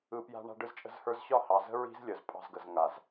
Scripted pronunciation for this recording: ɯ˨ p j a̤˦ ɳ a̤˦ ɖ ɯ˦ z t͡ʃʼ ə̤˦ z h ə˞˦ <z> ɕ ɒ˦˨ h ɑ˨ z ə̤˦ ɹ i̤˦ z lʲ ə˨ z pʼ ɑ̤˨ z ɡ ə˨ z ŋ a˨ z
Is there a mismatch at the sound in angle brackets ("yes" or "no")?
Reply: no